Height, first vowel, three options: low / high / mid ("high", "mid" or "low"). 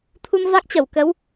high